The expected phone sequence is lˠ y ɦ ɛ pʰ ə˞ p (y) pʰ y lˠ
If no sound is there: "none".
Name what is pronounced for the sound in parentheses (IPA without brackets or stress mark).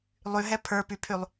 y